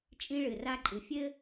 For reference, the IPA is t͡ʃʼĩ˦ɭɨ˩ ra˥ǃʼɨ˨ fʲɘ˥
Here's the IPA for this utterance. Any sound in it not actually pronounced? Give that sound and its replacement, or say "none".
none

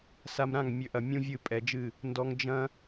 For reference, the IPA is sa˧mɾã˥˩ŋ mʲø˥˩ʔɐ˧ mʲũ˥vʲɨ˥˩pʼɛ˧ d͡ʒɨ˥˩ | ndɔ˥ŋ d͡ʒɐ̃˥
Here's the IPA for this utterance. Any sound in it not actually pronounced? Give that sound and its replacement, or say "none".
none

